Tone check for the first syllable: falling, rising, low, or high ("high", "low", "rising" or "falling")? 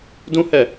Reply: high